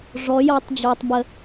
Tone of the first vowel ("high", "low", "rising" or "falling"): rising